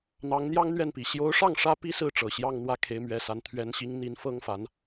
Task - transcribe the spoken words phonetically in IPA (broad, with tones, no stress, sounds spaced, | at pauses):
n̪ ɑ˧˥ ŋ n̪ j ɑ˥ ŋ n̪ ɥ ɛ˥˩ n p i˨˩ ɕ j o˧˥ ʊ̯ ʂ ɑ˥˩ ŋ ʂ ä˥ p i˥ s ɹ̩˥˩ ʈ͡ʂ ɤ˨˩ ɕ j ɑ˥˧ ŋ n̪ w ä˥˩ kʰ e˧˥ ɪ̯ m ɥ ɛ˧˥ s a˧˥ n t̪ʰ ɥ ɛ˧˥ n ɕ i˧˥ ŋ n̪ i˧˥ n f ɤ˥ ŋ f a˧˥ n